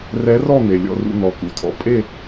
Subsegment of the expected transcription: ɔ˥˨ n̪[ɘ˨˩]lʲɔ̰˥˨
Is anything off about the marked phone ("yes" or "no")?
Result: yes